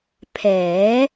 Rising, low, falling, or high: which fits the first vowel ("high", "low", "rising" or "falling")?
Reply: rising